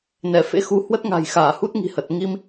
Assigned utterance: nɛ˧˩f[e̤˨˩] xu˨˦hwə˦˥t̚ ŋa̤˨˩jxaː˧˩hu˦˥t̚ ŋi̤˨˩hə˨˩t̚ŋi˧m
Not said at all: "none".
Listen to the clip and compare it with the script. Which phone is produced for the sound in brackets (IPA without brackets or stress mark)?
ḛ˧˥